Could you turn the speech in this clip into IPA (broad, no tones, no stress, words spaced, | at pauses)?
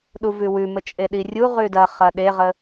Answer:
ɗuvʉwʉmə t͡ʃʼeɗirʲu ʁʉdɐ χɐɗeʁə